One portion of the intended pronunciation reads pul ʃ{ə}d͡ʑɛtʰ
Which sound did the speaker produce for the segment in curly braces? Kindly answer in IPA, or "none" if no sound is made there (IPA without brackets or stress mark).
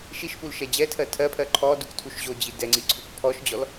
ɛ